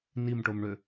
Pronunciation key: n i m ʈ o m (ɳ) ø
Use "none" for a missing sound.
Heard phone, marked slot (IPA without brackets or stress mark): ɳ